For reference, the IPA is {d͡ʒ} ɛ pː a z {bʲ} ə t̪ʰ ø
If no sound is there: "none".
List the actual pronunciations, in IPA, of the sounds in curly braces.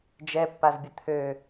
d͡ʒ, bʲ

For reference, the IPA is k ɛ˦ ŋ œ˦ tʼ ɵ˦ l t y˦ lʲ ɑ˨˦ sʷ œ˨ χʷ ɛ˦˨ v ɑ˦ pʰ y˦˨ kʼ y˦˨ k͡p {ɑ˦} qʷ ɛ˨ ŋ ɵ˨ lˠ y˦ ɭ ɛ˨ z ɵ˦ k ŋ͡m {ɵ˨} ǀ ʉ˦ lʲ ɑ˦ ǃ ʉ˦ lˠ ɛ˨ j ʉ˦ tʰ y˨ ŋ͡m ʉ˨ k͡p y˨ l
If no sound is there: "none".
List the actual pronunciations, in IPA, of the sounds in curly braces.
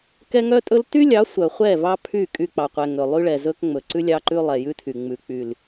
ɑ˨, ɵ˨

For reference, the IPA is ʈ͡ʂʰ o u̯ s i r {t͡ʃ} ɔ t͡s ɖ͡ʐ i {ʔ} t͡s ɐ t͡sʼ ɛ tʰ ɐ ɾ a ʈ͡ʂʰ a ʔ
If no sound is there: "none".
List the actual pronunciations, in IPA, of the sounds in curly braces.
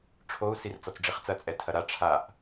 t͡s, χ

